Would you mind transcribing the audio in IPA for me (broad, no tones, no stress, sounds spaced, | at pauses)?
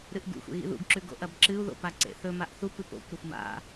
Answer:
ɾ ɨ ʔ ɡ ṵ xʷ ḛ ɣ ḭ ð ṵ ɡ ǁ ʉ ɡ o̰ ʔ ɐ b ǁ ɨ u̯ ð o̰ p a ǀ ḛ θ ɵ m a ʔ θ u p ɨ p o̰ kʷ ɾ ɐ xʷ m a̰